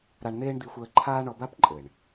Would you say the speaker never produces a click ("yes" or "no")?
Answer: no